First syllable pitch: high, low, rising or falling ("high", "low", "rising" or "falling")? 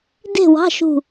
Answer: falling